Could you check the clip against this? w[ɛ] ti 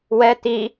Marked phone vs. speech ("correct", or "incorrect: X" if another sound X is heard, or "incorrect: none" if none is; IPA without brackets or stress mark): correct